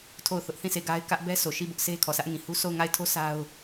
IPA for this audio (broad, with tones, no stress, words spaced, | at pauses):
tʰo˦˨ʊ̯θʊ˦ʔ θĩ˦˨se˦˨ɡa˦ɪ̯kä˦ʔ bɛ˦sʰo˨ʃi˦˨ bʊ˦ʔsʰe˦kʰɔ˨ sʰä˦ʔŋĩ˨hu˦ so˦˨ʊ̯ŋa˦˨ɪ̯tʰo˦ sa˦ʊ̯